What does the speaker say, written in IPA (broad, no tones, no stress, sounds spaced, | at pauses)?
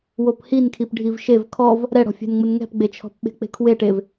w o p h i n kʰ i p ɖʱ i v ʃ e v kʰ ɔ v | ɾ ɛ ɽ ɔ̤ fʲ ɛ̤ n ŋ͡m ʊ n ŋ ɛ̤ p ɡ͡b e t͡ʃʰ ɔ̤ p ɓ e̤ k͡p e̤ kʰ w e ʈ e v